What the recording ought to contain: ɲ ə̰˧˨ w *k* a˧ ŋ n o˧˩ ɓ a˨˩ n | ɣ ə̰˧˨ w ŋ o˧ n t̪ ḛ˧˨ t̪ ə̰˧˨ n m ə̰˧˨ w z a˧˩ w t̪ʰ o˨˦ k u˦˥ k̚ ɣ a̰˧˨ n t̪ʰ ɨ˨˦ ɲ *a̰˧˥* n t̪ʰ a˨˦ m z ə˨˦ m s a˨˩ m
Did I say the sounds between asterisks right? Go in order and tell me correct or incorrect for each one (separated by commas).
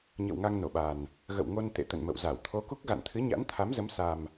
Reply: incorrect, correct